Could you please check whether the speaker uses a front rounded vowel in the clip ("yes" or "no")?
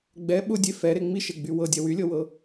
yes